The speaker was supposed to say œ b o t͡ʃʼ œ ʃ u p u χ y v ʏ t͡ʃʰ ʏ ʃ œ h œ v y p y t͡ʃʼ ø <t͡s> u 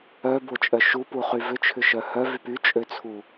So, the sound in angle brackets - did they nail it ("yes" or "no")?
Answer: no